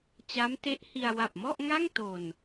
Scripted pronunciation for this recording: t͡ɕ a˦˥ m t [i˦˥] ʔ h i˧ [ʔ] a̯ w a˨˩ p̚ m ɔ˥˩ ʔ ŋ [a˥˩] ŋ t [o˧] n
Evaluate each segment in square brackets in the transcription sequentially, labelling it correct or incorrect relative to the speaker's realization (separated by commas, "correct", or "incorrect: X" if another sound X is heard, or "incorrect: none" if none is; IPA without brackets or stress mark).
incorrect: e˦˥, incorrect: none, correct, correct